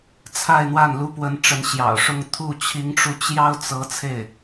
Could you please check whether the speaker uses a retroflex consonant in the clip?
yes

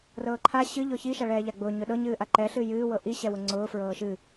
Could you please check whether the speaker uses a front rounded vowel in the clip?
no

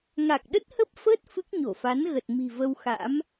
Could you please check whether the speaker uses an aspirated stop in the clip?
no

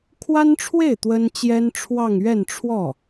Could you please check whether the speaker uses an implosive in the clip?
no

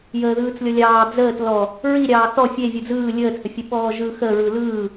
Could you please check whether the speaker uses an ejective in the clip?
no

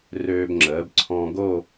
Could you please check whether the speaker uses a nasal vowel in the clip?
yes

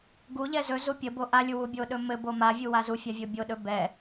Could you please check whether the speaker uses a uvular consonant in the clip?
no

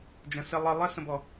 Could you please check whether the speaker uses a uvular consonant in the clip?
no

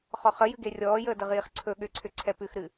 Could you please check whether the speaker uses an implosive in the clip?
yes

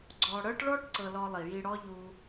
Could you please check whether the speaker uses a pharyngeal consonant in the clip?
no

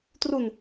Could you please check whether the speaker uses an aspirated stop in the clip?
no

